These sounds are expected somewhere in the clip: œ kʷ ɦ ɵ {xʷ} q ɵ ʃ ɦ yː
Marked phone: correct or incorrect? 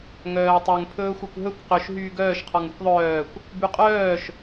incorrect